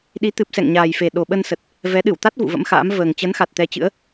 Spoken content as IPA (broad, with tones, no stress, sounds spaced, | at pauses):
ɗ i˨˦ t̪ ɨ˨˩ p̚ s ɛ̰˧˨ ŋ ɲ aː˨˩ j f e˨˩ ɗ o˨˩ ɓ ə˧ n s ə˨˩ t̚ | v ɛ˨˦ ɗ ɨ˧˩ w t̪ a˦˥ t̚ v ṵ˧˨ v ə̰˧˥ m x a̰ː˧˥ m v əː˨˩ ŋ t͡ɕ ə˨˦ n x a˨˩ t̚ t̪ ɛ˧ t͡ɕ ɨ̰˧˥ ə̯